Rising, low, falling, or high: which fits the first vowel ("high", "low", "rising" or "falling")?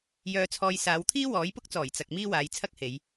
low